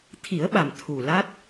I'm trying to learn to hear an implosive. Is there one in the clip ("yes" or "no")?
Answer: yes